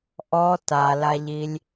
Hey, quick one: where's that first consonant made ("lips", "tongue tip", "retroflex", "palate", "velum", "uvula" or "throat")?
throat